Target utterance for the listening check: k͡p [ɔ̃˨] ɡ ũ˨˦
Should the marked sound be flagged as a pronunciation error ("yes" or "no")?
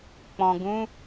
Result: no